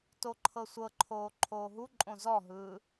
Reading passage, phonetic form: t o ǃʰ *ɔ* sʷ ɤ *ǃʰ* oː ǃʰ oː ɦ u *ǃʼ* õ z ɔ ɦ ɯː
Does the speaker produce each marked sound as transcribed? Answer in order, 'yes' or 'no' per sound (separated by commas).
no, yes, yes